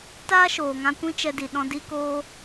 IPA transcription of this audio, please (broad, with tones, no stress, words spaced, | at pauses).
taː˦ʃoː˨ŋã˧ kʷĩ˦t͡ʃɛ˧di˨ ɗɔ̃˧ di˦koː˦